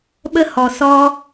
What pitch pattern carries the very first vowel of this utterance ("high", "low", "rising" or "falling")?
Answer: high